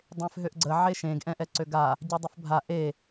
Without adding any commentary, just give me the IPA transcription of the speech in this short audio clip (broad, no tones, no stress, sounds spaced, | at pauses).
dˤ ẽ f ɦ ø ʔ ɡ͡ǀ ə ʕ e ʃ ẽ ɡ ʔ ɛ̃ ʔ ɛ ǀ ø ɡ a | ɟ ɔ dˤ ə f bʱ a ʔ e